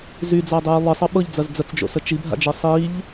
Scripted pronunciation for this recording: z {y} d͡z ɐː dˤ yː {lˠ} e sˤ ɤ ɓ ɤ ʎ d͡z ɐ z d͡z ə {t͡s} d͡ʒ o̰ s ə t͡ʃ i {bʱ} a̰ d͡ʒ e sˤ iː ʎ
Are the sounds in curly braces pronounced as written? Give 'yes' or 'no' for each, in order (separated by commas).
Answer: yes, yes, yes, yes